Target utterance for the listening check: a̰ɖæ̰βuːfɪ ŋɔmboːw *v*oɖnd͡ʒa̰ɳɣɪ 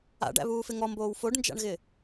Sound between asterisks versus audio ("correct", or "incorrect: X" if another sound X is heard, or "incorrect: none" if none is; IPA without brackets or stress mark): incorrect: f